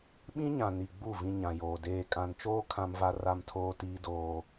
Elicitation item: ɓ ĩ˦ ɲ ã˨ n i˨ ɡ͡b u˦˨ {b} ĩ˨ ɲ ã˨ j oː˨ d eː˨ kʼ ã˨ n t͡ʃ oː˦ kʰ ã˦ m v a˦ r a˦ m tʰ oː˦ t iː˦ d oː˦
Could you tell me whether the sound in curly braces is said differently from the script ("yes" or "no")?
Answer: yes